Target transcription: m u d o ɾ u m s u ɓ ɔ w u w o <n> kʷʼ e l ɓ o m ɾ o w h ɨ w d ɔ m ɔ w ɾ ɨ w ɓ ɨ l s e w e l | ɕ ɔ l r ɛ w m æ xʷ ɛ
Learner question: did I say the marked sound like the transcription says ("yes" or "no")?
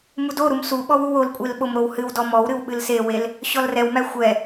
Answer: no